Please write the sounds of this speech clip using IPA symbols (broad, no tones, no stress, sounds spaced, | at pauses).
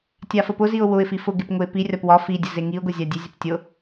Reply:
tʲ a f ə p ʊ z i ʊ̯ w ʊ ɪ̯ f i f ʊ ɡ e p ŋ ʊ ɪ̯ p i rʲ ɒ p w ɒ f i dʲ ə z e ŋ i ʊ̯ ɡ ʊ zʲ a dʲ e zʲ ʊ p tʲ ʊ